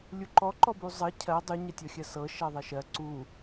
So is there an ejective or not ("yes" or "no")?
no